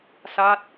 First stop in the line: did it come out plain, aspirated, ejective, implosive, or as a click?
plain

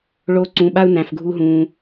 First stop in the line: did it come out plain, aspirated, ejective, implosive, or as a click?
click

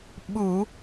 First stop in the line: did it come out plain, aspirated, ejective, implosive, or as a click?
implosive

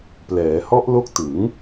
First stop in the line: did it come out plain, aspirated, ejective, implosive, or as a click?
plain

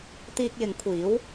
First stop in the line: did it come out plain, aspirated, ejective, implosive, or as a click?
plain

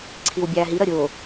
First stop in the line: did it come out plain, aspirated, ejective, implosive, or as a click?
click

